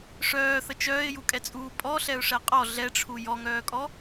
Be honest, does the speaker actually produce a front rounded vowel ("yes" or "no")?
yes